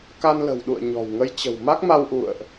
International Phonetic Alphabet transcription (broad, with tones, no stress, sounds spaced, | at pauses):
k a˧ n l ə̤˨˩ w ɗ ṵ˧˨ ə̯ ɲ ɔ̤˨˩ w ŋ ə˧ j t͡ɕ ə̤˨˩ w m a˦˥ k̚ m a˧ w ʔ ṵ˧˨ ə̯ ʔ